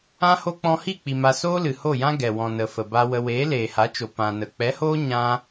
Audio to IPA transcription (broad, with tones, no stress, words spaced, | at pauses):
ã˦ho˦ k͡pɔ̃˧hi˦˨k͡pi˨ ma˧ soː˦lɨ˨ ho˦˨jã˦ ɡɛ˨wɔ̃˨nə˨ fə˨ba˧wə˧ weː˨˦leː˨ha˨˦t͡ʃo˨ pã˨nə˨ k͡pɛ˨˦hoː˦ ɲã˦